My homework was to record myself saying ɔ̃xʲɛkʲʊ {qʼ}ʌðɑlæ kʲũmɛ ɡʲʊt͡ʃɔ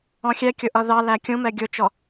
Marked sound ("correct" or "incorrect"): incorrect